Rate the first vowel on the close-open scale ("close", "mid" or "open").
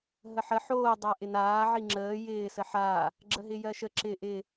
mid